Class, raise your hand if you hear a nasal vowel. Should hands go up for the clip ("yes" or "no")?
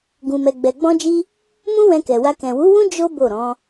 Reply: yes